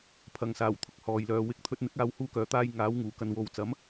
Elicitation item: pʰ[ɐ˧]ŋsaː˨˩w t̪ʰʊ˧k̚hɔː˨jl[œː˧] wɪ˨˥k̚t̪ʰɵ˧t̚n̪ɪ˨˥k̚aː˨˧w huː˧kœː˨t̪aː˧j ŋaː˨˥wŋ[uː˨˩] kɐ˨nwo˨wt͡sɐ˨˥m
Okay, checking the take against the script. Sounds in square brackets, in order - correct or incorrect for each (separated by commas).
incorrect, incorrect, correct